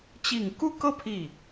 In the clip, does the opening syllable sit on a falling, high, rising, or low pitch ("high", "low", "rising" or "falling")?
low